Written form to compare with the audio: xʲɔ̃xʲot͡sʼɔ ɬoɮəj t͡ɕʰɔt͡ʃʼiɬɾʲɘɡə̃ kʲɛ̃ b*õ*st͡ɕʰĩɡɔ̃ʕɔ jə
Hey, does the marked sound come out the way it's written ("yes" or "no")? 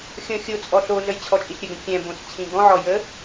yes